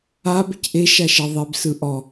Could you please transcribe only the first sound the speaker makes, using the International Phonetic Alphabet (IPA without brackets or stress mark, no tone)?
a